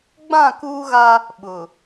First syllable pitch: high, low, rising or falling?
falling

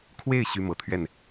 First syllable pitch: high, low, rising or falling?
falling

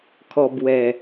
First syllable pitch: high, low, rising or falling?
low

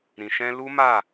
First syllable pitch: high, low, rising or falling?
low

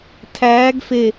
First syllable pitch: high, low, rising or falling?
rising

